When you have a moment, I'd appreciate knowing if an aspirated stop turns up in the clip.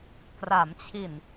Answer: yes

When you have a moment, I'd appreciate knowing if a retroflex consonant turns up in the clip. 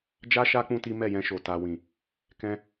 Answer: no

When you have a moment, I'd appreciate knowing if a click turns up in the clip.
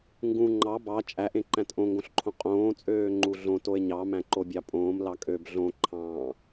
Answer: yes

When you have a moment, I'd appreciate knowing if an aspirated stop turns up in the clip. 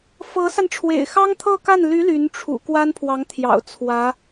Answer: yes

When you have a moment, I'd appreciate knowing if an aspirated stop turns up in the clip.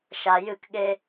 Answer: no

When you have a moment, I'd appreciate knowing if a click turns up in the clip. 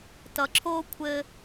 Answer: yes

